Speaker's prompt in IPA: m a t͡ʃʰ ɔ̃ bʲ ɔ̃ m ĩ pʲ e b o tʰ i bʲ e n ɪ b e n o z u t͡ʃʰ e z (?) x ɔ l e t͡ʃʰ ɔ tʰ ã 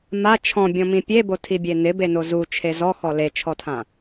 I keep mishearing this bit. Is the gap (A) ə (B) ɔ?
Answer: B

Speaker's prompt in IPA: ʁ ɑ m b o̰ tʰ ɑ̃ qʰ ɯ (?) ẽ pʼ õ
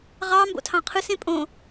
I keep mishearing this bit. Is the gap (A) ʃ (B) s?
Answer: B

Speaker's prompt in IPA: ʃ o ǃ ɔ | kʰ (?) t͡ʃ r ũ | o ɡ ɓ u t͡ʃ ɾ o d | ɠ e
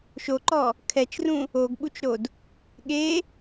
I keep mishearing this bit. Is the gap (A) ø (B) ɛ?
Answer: B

